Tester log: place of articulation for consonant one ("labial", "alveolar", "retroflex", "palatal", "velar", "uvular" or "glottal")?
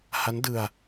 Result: glottal